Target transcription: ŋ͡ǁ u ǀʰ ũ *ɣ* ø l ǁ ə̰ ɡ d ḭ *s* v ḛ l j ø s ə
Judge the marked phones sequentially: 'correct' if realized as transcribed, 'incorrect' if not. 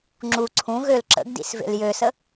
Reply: correct, correct

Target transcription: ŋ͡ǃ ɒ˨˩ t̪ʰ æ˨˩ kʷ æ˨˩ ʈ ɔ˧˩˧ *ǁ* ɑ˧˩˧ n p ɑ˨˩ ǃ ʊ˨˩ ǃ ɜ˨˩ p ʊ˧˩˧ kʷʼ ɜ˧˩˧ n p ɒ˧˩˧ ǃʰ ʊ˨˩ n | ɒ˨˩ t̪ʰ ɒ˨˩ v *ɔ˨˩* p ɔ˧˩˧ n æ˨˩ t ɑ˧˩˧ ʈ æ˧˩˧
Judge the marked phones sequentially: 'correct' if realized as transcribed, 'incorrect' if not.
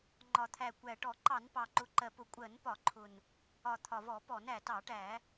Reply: incorrect: ǃ, incorrect: ɔ˧˩˧

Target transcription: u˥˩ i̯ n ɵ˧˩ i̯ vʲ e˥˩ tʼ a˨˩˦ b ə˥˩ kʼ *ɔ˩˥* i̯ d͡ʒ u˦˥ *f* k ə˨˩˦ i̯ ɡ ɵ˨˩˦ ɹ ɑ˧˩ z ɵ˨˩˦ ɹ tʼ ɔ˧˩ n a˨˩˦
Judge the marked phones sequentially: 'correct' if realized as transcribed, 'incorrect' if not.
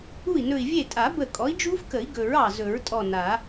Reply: correct, correct

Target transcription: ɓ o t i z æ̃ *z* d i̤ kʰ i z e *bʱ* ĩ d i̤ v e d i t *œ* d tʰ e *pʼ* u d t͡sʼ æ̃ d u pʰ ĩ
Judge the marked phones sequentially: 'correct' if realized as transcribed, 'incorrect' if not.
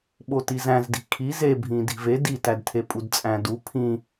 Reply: correct, correct, incorrect: æ, correct

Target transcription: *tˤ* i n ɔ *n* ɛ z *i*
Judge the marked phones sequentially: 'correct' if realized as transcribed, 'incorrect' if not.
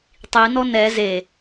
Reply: correct, correct, incorrect: e

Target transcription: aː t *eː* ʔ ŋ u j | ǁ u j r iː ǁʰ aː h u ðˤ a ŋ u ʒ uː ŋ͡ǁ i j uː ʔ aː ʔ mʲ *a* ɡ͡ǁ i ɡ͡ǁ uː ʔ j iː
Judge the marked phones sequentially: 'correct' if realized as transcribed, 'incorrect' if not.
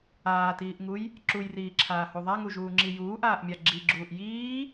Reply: incorrect: iː, correct

